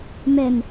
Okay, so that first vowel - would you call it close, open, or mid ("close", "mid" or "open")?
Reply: mid